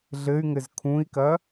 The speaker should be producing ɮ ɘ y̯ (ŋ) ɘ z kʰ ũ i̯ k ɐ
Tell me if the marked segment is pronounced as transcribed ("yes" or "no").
yes